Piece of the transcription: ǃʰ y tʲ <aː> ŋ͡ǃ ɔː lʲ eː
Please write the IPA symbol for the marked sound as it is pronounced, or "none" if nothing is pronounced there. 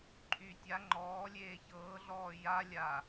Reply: a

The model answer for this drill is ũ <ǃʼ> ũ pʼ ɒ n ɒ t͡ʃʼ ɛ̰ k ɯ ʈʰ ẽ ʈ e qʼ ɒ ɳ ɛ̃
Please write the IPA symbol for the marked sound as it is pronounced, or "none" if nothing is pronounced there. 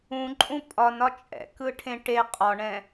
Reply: ǃʼ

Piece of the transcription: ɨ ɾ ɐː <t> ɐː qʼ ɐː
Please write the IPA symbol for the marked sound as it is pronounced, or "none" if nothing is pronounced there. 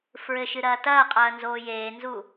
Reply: t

